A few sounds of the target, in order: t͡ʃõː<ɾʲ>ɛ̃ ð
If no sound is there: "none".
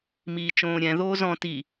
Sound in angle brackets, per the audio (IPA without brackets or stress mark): ɾʲ